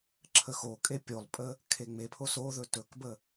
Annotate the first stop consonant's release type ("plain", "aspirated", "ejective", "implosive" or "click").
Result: click